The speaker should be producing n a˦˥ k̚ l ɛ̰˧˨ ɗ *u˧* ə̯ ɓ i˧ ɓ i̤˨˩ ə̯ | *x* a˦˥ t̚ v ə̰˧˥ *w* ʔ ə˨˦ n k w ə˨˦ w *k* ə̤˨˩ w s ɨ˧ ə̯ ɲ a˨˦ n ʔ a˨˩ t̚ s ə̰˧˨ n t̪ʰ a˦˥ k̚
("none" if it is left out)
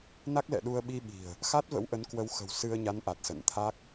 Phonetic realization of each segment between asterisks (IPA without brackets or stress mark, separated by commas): u˧, x, w, x